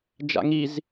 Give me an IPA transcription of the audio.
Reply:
d͡ʒ a̰ ŋ i z

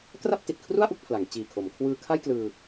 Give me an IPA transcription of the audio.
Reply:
k r a˥˩ p̚ t i˨˩ t̚ kʰ r u˥˩ a̯ ʔ u˥˩ k̚ pʰ l a˩˦ ŋ t͡ɕ iː˨˩ kʰ o˩˦ m kʰ w ɯː˧ kʰ a˥˩ j k l ɯː˧

